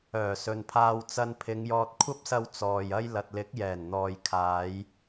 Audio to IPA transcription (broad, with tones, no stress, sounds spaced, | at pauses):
œː˨˩ s ɵ˨ n pʰ aː˧ w t͡s ɐ˧ n pʰ ɪ˨˧ ŋ j ɔː˧ t̚ kʷʰ ɐ˥ p̚ s ɐ˧ w t͡s ɔː˨ j ɐ˥ j l ɐ˨ t̚ l ɪ˨˥ k̚ j ɛː˨˩ n n̪ ɔː˨ j kʰ aː˨˧ j